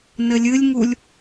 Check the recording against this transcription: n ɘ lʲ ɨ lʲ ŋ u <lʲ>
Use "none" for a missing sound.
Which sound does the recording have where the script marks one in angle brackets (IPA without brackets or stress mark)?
lʲ